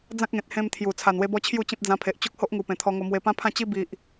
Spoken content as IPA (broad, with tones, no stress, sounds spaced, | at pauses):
d͡z ã˦ k̚ ŋ ẽ˨ t̚ h ẽ˧ m t̪ʰ j u˨˩ t͡sʰ a˨˩ n w e˧ b ɔ˧ t͡ɕʰ j u˥˧ t͡ɕ ẽ˦ p̚ d͡z ã˧ pʰ e˨ ʔ t͡ɕ o˦ k̚ h o˦ ʔ ŋ u˨˩ p ẽ˨˩ t̪ʰ ɔ˧ ŋ o˧ m w e˧ p ã˦ pʰ ã˥˧ t͡ɕ i˦ b i˨ ʔ